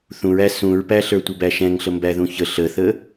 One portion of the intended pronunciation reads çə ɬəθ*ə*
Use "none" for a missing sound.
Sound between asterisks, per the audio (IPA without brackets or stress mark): ə